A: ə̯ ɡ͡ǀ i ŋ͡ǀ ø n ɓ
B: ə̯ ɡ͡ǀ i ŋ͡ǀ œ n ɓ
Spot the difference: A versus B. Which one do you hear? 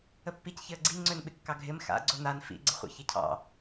A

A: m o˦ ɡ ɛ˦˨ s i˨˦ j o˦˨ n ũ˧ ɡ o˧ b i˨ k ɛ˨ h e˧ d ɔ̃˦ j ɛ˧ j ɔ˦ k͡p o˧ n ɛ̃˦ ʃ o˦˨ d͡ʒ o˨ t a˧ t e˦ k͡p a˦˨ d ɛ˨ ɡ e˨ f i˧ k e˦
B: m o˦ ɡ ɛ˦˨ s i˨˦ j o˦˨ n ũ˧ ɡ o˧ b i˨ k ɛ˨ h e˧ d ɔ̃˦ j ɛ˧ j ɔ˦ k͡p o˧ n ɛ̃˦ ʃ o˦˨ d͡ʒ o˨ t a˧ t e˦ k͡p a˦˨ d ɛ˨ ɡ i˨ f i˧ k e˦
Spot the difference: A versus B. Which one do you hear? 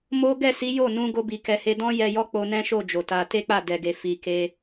A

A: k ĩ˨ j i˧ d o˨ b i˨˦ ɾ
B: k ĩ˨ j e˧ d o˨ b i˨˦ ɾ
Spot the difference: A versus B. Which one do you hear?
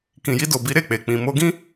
A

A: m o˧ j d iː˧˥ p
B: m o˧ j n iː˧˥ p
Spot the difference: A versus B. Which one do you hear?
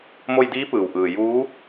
A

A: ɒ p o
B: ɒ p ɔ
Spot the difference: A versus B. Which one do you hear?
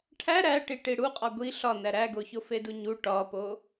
A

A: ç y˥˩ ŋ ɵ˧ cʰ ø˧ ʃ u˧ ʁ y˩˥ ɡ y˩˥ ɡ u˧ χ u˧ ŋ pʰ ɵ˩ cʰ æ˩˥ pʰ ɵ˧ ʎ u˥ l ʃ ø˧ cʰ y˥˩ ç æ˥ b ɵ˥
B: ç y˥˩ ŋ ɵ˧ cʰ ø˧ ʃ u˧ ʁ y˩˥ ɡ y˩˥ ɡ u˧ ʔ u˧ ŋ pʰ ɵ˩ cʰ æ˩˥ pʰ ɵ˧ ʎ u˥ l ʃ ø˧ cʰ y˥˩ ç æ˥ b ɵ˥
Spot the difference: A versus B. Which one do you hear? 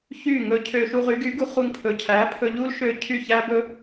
A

